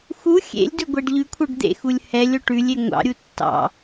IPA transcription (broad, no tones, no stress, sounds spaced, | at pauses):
x u xʲ ḛ lʲ d ɵ ɡʷ æ ɖ ʎ ʉ kʷʰ œ ɖ d̪ ḛ x u lʲ h ɛ lʲ o ʈ ʉ lʲ e ŋʷ ɑ̰ ɾʲ u tː ɑ̰